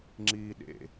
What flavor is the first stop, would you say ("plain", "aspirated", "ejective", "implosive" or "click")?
click